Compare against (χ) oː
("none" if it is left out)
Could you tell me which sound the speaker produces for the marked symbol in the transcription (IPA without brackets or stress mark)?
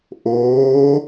ʔ